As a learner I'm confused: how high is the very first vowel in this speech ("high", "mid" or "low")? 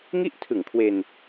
high